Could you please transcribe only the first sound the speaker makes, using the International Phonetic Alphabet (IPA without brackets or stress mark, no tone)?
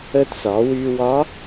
ə